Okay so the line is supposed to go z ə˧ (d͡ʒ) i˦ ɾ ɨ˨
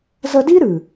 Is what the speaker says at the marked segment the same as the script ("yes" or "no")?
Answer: no